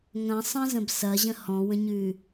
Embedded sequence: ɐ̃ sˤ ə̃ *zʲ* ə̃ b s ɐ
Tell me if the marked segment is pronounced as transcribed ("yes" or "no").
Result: no